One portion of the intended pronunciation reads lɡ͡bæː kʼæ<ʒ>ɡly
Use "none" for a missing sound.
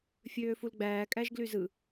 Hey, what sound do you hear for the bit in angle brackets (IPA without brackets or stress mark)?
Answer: ʒ